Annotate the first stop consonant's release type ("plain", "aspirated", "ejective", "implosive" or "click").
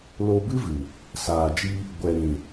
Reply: plain